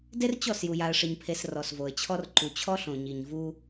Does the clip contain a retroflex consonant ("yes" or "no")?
yes